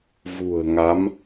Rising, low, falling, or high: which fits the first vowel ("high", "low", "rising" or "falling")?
low